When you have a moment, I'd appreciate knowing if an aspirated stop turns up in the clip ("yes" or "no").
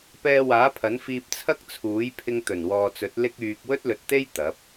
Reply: yes